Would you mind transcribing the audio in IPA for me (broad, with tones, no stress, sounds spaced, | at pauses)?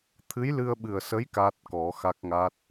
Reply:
t̪ʰ ɨ˧˥ j l ɨ˧ ə̯ ɓ ɨ˨˩ ə̯ s ə˧˥ j k a˦˥ t̚ k ɔ˨˩˦ x a˦˥ k̚ ŋ a˦˥ t̚